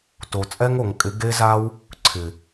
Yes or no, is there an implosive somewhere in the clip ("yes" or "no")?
no